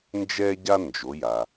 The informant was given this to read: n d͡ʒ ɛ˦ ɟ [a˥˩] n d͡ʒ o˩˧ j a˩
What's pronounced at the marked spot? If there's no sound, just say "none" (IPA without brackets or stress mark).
a˦